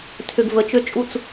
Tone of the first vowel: low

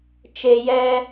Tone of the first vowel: low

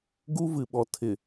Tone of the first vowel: high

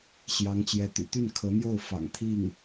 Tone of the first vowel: rising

